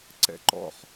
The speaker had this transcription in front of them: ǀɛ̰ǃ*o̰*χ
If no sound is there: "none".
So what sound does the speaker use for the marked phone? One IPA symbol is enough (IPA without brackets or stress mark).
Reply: ɔ̰